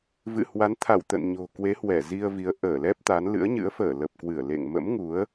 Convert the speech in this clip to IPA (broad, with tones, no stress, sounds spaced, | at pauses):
v ɨ̰˧˨ h w a˨˦ n t̪ʰ a˧˩ w t̪ ə̰˧˨ n ɲ o̤˨˩ k w e˨˦ h w ɛ˧˩ z i˧ ə̯ v i˨˦ ə̯ ʔ əː˧˩ l ɛ˦˥ p̚ t̪ a˨˦ n l ɨ̰˧˥ ə̯ ɲ ɨ̰˧˥ ə̯ f əː˧˩ l ə˨˩ p̚ k w ɨ˧˩ ə̯ l ḛ˧˨ ŋ m ə̰˧˥ m ŋ u˨˦ ə̯